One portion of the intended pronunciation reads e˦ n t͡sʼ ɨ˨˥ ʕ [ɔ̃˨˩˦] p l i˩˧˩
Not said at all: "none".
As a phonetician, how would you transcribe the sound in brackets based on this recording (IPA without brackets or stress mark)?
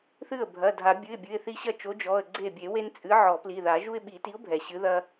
ɔ˨˩˦